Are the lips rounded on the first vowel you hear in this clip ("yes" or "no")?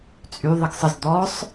yes